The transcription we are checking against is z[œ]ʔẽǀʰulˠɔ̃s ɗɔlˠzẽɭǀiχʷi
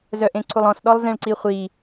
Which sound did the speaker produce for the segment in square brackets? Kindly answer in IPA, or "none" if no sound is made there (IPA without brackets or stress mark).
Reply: œ